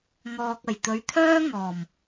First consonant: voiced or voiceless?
voiced